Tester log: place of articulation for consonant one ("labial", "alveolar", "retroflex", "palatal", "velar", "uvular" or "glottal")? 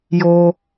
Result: palatal